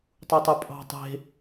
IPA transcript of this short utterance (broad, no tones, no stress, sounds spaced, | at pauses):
tˤ u tˤ u pʼ ɑ̤ tˤ e̤